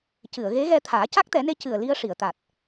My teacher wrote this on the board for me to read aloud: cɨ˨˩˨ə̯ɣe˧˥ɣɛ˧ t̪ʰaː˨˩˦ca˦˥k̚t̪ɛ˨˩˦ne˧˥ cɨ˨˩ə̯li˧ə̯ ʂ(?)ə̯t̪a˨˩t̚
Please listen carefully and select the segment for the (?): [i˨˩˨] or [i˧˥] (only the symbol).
i˨˩˨